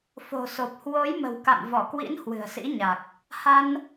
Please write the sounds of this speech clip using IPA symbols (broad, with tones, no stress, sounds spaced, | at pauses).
f o̤˨˩ s o˨˩ p̚ h w o˨˦ j m ə̤˨˩ w k a̰˧˨ m v ɔ˧˩ k w ḭ˧˥ n h w ɨ̤˨˩ ə̯ s ḭ˧˥ ɲ a˨˩ k̚ | h a˧ n